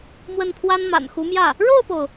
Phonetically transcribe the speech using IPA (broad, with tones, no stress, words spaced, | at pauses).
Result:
mwə˥˩npʰwa˥nma̰˨˩n xu˧˥mjä˥˩ | ɻo˥˩ʊ̯po˩ʊ̯